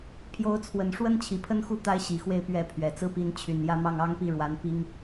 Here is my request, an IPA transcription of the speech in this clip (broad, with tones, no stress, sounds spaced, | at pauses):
pʰ j o˧˥ ʊ̯ t͡sʰ w ə˨˩ n ʂ w ə˥ n t͡ɕʰ i˨˩ pʰ ə˥ n x u˥˩ t̪ a˥ ɪ̯ ɕ i˨˩ x w e˥˧ ɪ̯ p ɥ ɛ˥˩ pʰ ɥ ɛ˨˩ t͡s ɹ̩˥ p i˧˥ n t͡ɕʰ y˨˩ n j ä˥˧ m ɑ˥˩ ŋ ɑ˥ ŋ p i˥˩ ɻ w a˧˥ n p i˥ ŋ